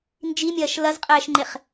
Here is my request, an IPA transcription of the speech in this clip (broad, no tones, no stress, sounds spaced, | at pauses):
n d͡ʒ i mʲ ɐː ʃ l ɐ z qʼ ɛː ʃ ŋ͡ǃ e χ